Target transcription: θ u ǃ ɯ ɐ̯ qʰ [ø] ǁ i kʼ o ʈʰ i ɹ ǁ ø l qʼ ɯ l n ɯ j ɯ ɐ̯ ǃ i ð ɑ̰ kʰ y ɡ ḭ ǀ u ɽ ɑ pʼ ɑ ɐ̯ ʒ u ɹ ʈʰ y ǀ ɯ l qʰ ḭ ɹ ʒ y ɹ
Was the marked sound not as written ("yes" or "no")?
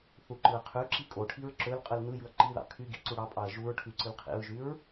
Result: yes